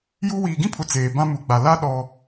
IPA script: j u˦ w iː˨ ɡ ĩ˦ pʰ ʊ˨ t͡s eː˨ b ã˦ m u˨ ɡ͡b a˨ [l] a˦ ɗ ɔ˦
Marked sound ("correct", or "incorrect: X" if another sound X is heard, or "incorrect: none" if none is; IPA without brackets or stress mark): correct